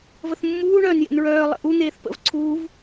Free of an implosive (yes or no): yes